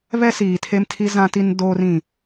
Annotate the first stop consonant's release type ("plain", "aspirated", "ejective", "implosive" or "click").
aspirated